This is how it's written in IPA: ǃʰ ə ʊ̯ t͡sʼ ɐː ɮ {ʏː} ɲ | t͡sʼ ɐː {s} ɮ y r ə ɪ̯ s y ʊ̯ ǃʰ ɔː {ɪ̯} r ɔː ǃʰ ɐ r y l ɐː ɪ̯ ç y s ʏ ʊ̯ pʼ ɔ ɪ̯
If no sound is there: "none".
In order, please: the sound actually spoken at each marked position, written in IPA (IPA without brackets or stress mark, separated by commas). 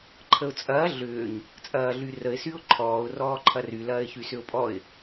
ʏː, none, ʊ̯